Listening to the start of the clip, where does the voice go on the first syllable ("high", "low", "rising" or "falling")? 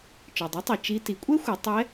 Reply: low